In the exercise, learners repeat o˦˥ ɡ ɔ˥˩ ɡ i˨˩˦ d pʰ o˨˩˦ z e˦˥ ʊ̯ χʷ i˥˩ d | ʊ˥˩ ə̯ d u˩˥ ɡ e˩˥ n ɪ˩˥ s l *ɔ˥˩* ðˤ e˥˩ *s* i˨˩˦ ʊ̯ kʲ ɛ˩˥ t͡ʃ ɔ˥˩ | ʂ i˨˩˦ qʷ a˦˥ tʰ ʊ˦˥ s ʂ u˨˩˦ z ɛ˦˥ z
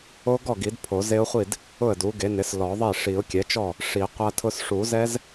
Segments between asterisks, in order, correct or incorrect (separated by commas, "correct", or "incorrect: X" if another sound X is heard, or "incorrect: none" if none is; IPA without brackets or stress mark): incorrect: ɔ˨˩˦, incorrect: ʂ